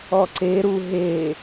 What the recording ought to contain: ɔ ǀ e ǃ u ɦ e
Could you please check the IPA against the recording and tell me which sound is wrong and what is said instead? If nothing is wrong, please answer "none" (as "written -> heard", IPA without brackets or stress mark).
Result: ǃ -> ɾ